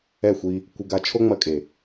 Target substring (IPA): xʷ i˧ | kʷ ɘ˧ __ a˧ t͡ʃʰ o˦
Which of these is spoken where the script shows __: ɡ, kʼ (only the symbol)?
ɡ